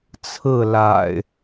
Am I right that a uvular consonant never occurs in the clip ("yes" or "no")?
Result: yes